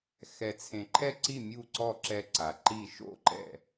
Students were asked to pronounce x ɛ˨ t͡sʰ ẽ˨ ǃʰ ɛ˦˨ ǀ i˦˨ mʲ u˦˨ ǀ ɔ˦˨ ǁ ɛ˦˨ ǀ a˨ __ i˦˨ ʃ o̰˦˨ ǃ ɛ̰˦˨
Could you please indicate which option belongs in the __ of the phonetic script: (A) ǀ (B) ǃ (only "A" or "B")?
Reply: B